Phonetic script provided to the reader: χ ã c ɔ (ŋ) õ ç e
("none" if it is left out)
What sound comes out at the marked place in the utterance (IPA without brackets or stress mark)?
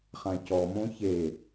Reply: m